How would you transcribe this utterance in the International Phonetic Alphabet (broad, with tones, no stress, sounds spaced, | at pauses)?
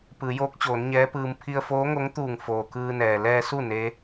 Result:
p ɯː˩˧ j oː˧˥ k̚ t͡ɕ oː˩˧ n ɲ ɛː˧˥ p ɯː˧ m pʰ i˧ ə̯ f oː˧˥ ŋ o˧˥ ŋ t̪ uː˧˩ ŋ f oː˩ k ɯː˧ n ɛː˩ l ɛː˧ s u˥˨ n e˧˥